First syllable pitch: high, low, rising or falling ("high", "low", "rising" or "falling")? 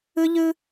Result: high